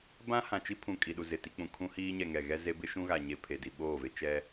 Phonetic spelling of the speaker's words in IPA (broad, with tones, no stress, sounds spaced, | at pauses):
b ã˦ h ã˨ t͡ʃ i˦ pʰ ũ˨ kʼ i˨ ɗ u˨ z ɪ˨ t i˦ k͡p ũ˨ kʰ ũ˦ h iː˦ ɲ ɛ˨ ŋ ɛ˨ ɣ ɛ˦ z e˦ b ɪ˦ ʃ ũ˦ ɣ a˨ ɲ e˨ pʰ e˨ d i˨ ɓ oː˦˨ v e˦ t͡ʃ ɛ˦